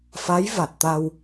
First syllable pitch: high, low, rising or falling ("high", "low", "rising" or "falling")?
rising